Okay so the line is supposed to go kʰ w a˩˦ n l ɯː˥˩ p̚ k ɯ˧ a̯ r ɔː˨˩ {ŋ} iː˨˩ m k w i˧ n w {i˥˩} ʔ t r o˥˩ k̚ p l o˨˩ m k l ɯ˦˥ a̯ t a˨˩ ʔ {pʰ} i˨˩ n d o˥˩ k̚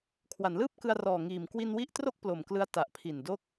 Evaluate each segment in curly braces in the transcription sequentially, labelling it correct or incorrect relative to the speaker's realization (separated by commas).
correct, incorrect, correct